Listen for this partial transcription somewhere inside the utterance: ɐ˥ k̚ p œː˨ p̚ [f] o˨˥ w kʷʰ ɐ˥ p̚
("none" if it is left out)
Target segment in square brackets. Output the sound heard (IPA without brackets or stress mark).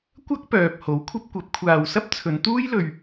h